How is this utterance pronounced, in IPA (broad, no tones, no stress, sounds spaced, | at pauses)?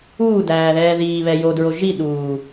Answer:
uː d æː ð ɛː ð iː β ɛ j o d ɹ o ʒ i ɗ uː